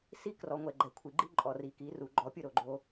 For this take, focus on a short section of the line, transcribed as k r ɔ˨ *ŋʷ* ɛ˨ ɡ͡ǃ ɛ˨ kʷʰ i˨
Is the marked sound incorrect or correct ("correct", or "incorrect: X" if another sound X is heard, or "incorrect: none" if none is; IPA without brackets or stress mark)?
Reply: correct